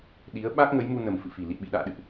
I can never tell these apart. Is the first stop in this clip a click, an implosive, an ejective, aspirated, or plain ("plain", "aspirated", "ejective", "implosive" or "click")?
implosive